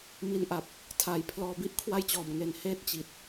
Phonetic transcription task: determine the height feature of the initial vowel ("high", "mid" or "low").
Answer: high